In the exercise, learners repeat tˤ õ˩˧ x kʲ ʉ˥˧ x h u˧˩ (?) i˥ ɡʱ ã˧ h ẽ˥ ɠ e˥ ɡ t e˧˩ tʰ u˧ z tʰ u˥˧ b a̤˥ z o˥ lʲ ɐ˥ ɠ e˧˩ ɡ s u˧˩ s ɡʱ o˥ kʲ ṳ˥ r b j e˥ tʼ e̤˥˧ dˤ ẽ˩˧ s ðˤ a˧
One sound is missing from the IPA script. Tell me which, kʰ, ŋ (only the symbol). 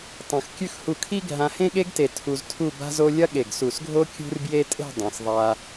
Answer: kʰ